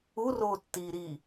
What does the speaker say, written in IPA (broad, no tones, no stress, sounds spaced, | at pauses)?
u r oː tː iː ɾ iː